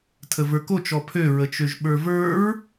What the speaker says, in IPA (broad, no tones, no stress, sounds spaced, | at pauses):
tʰ ə v ə˞ k o t͡ʃ ɔ pʰ ø ɹ ə t͡ʃ ø ʒ ɓ ə˞ v ə˞ ɹ